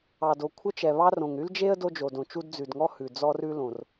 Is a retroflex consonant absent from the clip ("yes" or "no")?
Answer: yes